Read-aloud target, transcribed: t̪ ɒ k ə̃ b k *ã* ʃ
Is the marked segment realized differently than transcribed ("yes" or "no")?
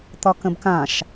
no